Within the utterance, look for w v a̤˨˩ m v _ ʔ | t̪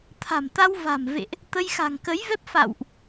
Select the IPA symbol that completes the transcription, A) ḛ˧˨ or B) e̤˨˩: A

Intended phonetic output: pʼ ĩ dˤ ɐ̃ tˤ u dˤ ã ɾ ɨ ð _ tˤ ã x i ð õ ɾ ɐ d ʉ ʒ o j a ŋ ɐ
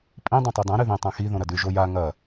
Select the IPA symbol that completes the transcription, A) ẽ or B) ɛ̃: A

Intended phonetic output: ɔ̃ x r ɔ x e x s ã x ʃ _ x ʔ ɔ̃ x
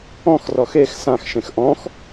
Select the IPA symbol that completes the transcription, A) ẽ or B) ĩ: A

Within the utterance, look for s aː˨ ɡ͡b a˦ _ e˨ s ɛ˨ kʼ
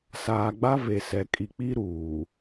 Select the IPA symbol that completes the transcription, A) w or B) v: B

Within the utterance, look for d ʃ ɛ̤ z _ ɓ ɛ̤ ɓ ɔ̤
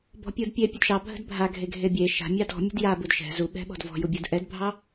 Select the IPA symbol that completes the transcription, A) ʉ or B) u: B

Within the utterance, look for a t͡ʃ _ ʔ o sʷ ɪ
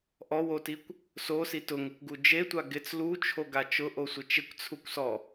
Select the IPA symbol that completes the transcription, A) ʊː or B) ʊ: B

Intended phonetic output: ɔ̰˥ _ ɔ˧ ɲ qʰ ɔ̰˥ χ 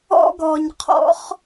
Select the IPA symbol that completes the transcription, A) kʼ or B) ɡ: B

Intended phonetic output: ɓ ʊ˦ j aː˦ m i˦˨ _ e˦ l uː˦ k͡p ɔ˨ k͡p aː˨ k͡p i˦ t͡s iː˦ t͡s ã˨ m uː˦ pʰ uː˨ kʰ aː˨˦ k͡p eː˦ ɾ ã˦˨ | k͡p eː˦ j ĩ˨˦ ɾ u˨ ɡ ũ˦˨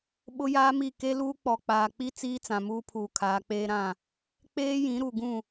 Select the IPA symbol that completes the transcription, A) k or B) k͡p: A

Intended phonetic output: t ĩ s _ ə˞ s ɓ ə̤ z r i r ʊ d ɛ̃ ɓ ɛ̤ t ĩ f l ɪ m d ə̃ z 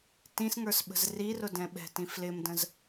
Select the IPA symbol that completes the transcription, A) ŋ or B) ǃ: A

